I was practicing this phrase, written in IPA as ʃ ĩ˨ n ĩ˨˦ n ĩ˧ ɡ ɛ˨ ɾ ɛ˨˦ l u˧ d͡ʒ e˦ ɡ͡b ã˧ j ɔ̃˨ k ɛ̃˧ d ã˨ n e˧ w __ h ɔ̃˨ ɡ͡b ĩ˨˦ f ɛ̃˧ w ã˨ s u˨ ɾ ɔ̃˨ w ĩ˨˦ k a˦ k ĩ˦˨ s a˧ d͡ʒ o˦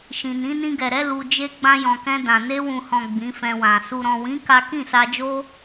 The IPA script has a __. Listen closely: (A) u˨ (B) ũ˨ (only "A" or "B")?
B